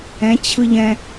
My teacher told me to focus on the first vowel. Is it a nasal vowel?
yes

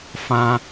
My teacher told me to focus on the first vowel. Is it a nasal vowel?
yes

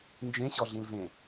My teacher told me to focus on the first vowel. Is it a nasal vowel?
yes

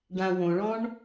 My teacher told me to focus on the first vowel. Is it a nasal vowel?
yes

